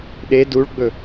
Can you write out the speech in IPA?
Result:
ɗe duɭɡ͡bɵ

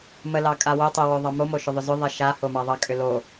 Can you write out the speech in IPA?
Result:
mə lɑkʼawo tˤə woðˤɑmo moʃʏðˤʏzʏ ðˤɪʃa homɑðˤɑ kʼʏlo

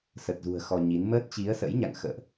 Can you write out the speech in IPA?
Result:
sə˨˩t̚zṳ˨˩ə̯ xɔ˧ɲi˨˦n məː˦˥t̚t͡ɕi˨˦ə̯sə̰˧˥jɲa̰˧˨ŋ xə̰ː˧˨ʔ

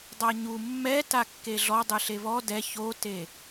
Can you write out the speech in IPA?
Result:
dˤaɲu mːɛta kːeɮɔdˤɨ ɬeβɔ dɛ çote

